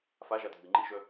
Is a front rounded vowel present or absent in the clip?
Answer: present